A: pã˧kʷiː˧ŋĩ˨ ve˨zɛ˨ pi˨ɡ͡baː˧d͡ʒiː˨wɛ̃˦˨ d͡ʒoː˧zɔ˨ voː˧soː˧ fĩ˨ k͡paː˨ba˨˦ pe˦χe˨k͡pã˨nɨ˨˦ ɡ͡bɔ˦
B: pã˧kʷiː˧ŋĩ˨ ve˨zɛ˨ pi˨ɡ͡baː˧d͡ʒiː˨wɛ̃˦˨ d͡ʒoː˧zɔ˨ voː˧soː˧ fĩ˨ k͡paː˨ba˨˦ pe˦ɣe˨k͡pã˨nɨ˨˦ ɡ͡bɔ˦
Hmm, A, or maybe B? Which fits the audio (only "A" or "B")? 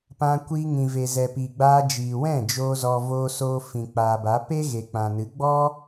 B